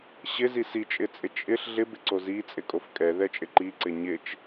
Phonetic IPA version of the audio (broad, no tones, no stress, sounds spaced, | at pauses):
ɕ ɪ z i s i t͡ʃʼ ɪ t͡sʼ ɪ t͡ʃʼ ɪ ɬ ɮ ɪ b ɪ ǀ o z i t͡sʼ ɪ kʼ o f kʼ ɛ ð ɛ t͡ʃʼ ɪ ǃ i ǀ ɪ ɲ ɪ t͡ʃ